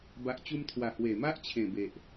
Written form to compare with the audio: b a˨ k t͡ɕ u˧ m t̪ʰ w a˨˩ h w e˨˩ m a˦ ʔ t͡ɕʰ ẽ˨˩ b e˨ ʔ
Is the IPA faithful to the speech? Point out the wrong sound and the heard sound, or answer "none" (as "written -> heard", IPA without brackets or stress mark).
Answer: k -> ʔ